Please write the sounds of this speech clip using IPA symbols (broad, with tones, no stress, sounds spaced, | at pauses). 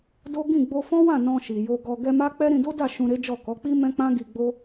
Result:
d o˦ ɡ ĩ˦˨ ɡ͡b o˧ f ɔ̃˦ w ã˦˨ n ɔ̃˧ ʃ i˨ j o˧ ɡ ɔ˧ ɡ ɛ˧ m a˦ k͡p ɛ˦ ɾ ĩ˧ d o˦ d a˦˨ ʃ ũ˧ ɾ e˦ d͡ʒ ɔ˦˨ k ɔ˨˦ k͡p i˦ m ɛ̃˦ k͡p ã˦ ɡ i˧ ɡ͡b o˦